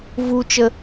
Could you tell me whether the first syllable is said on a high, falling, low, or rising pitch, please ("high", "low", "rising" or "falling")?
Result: low